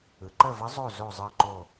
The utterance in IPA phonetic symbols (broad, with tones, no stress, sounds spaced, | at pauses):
ɯ˩˧ ǃ ə˦˨ v ə˧˥ zˤ o˦˨ z o˦˨ zˤ ɯ˦˨ ǃ o˦˨